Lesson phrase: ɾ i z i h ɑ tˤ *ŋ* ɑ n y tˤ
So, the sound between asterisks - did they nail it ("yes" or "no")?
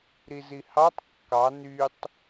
no